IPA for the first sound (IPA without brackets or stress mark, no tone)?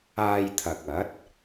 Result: aː